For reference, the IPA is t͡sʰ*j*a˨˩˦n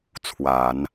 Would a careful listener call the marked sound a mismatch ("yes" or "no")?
yes